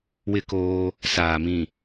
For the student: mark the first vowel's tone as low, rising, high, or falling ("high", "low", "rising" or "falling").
high